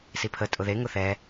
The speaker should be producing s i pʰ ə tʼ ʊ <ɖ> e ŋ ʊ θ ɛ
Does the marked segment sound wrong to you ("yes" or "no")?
yes